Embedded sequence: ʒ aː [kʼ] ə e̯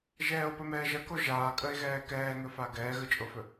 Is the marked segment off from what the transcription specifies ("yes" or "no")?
no